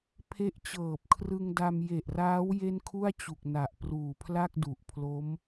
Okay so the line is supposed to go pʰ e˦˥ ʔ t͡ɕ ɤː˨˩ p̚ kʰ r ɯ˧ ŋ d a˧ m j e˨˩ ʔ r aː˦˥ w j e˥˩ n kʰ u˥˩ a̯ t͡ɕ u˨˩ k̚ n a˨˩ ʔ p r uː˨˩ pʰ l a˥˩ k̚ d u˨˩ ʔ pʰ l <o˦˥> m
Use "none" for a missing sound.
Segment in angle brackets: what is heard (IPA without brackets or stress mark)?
o˦˥